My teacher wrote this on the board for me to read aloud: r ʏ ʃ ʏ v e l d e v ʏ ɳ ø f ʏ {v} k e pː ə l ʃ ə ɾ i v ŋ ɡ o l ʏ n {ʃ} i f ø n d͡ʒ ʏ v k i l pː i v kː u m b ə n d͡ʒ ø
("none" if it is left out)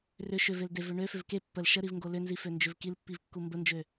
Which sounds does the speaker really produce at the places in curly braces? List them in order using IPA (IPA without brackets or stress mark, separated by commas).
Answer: v, z